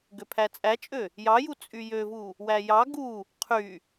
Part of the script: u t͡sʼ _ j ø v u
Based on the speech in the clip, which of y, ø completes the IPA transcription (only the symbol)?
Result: y